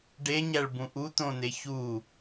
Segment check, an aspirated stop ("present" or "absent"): absent